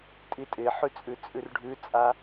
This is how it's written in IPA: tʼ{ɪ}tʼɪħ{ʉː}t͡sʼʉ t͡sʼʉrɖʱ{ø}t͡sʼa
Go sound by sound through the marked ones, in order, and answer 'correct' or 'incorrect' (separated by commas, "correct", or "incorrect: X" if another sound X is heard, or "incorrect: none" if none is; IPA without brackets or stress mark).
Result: incorrect: i, incorrect: ʉ, incorrect: ʉ